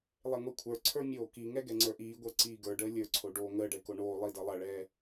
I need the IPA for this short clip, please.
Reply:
lˠ e ŋʷ e kʷʰ ə˞ ǀʰ ə˞ mʲ oː k i ŋ ɛ ɡ ɛ ŋ͡ǀ ə˞ ʔ iː ɡʷ ə˞ ǀ iː ɡ ə˞ ɖ əː lʲ ə˞ ǀʰ o ɖ oː ŋ əː ɖ ɛ k o ɳ oː lˠ i d ʌ lˠ ʌ ɭ ɛː

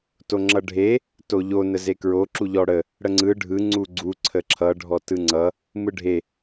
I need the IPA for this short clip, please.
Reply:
t o ŋ͡ǁ ʌ ɖʱ e | t o ʎ o n ə z e k ɹ o ǁ u ʎ ɔ ɽ ə | ɽ ə ŋ͡ǀ ɯ ɖʱ ɯ ŋ͡ǀ u ɡ͡ǀ u ǀʰ ə ǁʰ ʌ ɖʱ ɔ t ɯ ŋ͡ǀ ʌ | m ɯ ɖʱ e

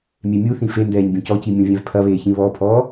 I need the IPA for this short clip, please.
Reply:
mʲ e mʲ u θ ĩ f e n d ɛː ɲ bʲ õ c ɔ c i mʲ õ vʲ ɛ̃ v pʰ ɐ β eː ç ĩ β ɔ pʰ ɔː

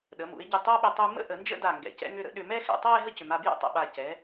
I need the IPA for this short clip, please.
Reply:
ɗ ə˩˧ m ṵ˩˧ ɪ̯ ɟ ɪ˧˩ tˤ a˥ ɓ ʏ˧ tˤ u˧ m ə̰˥ ʔ ə˩˧ n d͡ʒ ə̰˥˧ d a˧˩ ŋ ɡ ɛ̰˩˧ c ɛ̰˧ ŋ ʏ˥˧ ɾ ə̰˥ ɗ ʏ˧ m ɛ˥˧ x ɛ̰˩˧ tˤ a˥˧ ɪ̯ ɦ ə˥ c ʏ˩˧ m a˧ b j ɛ̰˥˧ tˤ ə̰˧˩ ɓ a˧˩ c ɛ˩˧

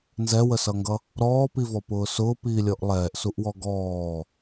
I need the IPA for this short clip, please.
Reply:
n z ɛ w ə s ʌ ŋ ɡ ʌ | ɾ ɔː p i v ɔ p ʊː s ʊː p iː lʲ ɔ ʔ lˠ ɛː ʔ s u ʔ w ɔ ɡ ɔː

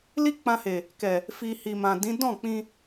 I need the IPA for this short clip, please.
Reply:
l i˦ k͡p ã˧ h e˨ | k ɛ˨ | f i˧ h i˨ m ã˨ d ĩ˨˦ d ɔ̃˦˨ k͡p ĩ˧

